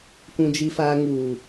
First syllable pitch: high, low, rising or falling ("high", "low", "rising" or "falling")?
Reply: high